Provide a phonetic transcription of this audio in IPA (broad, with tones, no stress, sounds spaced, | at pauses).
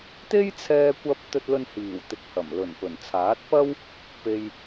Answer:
t̪ e˥ j t͡sʰ ɛː˧ kʷ ɐ˧ p̚ t̪ ɵ˧ t̚ l ɵ˧ n h iː˨˩ w t̪ ɪ˨ k̚ h ɐ˨˩ m l ɵ˨˩ n p ɵ˨˩ n t͡sʰ aː˨˥ t̚ p ɐ˥ w | p e˧ j